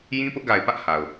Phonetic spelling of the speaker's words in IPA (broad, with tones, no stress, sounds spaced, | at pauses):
j ĩ˦ p ʊ˦ ʔ ɡ a˨ ɪ̯ p ä˦ ʔ h a˨ ʊ̯